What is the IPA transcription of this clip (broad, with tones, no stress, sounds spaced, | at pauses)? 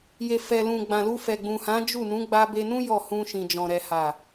j e˨ f ɛ˨ l ũ˨ ɡ͡b ã˨ l u˧ f ɛ˨ ɡ͡b ũ˨ h ã˨˦ d͡ʒ u˦˨ n ũ˨˦ ɡ͡b a˧ b e˧ n ũ˦ j ɔ˦˨ h ũ˧ ʃ ĩ˨ d͡ʒ ɔ̃˨ ɾ ɛ˨ h a˨